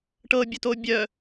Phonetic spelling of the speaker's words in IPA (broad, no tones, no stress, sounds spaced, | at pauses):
ʈ ɤ bʲ ɵ t o bʲ œ